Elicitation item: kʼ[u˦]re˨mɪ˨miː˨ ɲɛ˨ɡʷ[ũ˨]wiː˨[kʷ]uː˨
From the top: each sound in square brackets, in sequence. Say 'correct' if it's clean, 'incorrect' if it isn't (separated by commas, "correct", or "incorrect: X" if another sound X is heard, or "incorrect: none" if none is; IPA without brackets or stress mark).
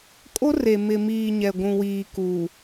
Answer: incorrect: o˦, correct, incorrect: k